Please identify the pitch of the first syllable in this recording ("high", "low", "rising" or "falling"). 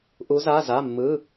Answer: rising